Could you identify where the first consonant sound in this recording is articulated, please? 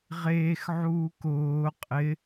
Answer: uvular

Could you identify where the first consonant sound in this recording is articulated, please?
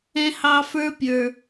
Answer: glottal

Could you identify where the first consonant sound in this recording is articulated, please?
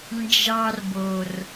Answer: alveolar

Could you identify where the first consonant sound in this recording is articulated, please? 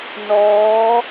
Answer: alveolar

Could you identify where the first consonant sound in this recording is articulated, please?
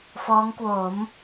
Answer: labial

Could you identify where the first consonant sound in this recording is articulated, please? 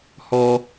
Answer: glottal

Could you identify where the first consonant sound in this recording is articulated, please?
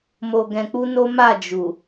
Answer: labial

